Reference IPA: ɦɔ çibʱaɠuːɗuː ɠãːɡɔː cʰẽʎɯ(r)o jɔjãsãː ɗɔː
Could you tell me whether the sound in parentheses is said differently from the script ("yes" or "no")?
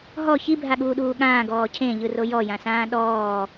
no